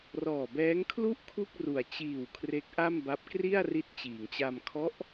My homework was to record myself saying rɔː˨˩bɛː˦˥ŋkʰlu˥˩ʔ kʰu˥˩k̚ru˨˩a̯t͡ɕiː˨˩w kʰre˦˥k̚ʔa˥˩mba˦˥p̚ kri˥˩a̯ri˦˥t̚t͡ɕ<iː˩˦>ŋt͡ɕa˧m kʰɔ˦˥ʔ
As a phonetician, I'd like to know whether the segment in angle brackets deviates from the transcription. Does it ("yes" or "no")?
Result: no